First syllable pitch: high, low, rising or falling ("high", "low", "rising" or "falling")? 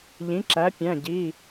rising